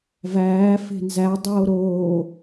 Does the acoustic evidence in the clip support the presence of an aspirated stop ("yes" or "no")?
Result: no